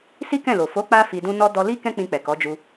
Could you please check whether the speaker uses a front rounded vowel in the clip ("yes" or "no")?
no